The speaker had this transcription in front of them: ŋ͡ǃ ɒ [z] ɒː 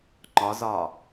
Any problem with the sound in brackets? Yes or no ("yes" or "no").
no